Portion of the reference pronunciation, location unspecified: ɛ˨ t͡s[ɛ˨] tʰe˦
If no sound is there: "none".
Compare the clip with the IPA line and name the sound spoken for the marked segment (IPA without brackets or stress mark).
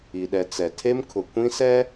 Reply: ɛ˨